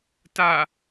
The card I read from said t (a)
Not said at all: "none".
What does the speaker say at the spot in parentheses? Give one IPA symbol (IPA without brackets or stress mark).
a